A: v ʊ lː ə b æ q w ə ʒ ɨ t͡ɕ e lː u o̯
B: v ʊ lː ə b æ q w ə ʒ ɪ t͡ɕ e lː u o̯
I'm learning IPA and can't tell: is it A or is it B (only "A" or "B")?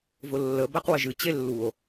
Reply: A